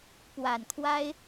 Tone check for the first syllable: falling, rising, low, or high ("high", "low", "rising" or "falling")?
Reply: low